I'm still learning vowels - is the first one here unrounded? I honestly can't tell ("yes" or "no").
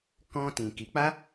no